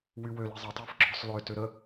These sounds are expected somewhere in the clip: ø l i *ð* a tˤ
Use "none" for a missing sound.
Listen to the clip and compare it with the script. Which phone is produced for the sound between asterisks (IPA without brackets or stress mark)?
zˤ